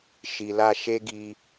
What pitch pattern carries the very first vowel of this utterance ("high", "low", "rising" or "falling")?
low